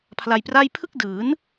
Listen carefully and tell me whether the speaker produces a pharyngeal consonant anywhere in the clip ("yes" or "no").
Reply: no